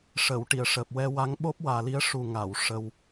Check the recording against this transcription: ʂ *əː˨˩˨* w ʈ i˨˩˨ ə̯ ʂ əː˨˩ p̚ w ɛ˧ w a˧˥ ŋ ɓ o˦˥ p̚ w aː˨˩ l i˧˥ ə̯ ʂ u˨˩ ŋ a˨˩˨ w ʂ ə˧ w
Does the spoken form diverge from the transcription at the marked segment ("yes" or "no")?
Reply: yes